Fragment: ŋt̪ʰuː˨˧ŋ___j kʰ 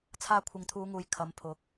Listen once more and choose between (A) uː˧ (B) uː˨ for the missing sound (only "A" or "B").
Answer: B